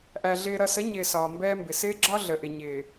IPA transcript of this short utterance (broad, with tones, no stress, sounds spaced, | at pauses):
ʔ æ˨ ɮ ɪː˨ ɾ ʌ˨ s ə˨˦ ɲ ɪː˨ s ɒː˨ m b ɛː˦ m b ɪ˨ s ɪː˦ ɡ͡ǁ ɒ˦ ɮ ə˨ ʔ ɪ˨ ɲ ɪː˨